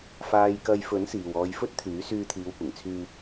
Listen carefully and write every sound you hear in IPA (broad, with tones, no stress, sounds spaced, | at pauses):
f aː˧ j k ɐ˧ j f ɵ˨˥ n s iː˨ w ɔː˧ j f ɵ˥ t̚ t̪ʰ yː˨˥ s yː˧ t̪ʰ iː˨˧ w kʷ ɪ˨˩ ŋ t͡sʰ yː˨